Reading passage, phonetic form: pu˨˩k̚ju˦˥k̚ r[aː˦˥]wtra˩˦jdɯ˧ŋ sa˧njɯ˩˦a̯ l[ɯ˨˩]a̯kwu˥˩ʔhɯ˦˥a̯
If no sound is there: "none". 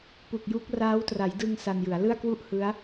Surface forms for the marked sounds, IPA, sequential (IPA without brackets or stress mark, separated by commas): aː˦˥, ɯ˥˩